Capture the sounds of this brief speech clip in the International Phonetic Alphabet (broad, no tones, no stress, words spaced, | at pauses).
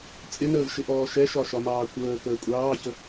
t͡sʼɪnəːvʃɪʔɔː ʃɛʃɒʃɒmɑː kʷəːkəː kʷʼɑːçə